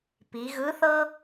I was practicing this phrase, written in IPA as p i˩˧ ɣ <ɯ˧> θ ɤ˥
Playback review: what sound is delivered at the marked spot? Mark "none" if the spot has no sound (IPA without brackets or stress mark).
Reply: ɯ˧˥